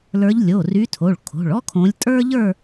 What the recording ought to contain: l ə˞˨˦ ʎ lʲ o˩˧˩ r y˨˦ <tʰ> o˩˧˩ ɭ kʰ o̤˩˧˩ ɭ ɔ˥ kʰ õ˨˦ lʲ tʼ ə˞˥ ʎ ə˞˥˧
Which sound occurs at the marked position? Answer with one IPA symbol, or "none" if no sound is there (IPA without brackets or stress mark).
tʰ